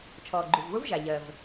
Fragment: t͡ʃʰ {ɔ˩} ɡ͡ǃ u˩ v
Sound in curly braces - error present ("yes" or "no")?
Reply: yes